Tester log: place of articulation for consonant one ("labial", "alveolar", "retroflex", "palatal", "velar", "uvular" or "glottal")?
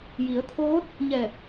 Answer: palatal